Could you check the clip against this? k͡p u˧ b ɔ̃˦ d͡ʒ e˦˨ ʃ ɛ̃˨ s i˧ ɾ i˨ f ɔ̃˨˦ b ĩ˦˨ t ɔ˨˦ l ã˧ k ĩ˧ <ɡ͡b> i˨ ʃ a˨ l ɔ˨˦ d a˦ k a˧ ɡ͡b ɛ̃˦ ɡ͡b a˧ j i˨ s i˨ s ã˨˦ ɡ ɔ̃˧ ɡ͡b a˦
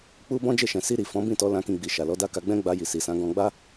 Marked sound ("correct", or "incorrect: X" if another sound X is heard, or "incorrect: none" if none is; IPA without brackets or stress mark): correct